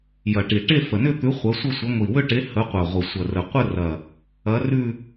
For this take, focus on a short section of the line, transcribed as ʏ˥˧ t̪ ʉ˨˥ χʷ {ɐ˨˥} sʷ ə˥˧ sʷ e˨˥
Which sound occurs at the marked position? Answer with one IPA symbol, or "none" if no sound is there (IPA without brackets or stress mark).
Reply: ɐ˨˥